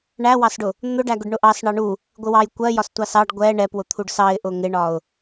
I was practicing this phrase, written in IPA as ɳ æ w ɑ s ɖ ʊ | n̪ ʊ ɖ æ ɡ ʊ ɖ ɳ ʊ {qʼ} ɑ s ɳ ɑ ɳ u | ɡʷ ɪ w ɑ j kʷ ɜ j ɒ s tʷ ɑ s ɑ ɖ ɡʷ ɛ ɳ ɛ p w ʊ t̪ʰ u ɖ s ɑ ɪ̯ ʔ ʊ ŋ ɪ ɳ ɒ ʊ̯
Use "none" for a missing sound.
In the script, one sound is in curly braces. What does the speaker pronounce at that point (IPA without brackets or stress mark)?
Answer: ʔ